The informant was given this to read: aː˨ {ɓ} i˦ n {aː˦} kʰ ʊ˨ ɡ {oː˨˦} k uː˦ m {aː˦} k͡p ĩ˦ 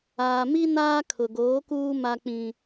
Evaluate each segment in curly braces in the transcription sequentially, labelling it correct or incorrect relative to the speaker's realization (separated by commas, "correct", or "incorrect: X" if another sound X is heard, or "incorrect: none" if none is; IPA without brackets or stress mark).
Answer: incorrect: m, correct, correct, incorrect: a˦